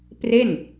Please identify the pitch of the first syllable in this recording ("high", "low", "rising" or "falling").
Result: falling